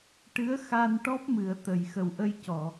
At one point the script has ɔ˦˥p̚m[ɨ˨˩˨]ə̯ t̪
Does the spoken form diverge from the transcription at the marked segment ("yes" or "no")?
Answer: no